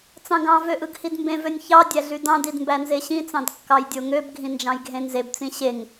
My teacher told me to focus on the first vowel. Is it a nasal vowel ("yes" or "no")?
yes